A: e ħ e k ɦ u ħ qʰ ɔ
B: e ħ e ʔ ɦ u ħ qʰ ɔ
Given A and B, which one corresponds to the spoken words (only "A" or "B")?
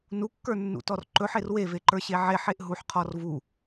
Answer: B